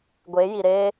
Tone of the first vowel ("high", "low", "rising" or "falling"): rising